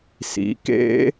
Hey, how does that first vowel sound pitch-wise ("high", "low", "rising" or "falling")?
rising